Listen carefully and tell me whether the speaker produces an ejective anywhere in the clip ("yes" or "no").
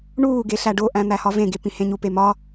no